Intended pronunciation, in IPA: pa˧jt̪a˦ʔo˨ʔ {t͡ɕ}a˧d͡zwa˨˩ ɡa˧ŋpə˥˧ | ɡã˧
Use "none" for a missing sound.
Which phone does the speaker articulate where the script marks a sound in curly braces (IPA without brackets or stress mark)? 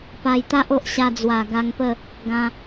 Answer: ɕ